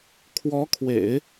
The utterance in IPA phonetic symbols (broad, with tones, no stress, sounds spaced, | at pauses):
kʰ w ɔ˧˥ kʰ w ḛ˨˩˦ ɪ̯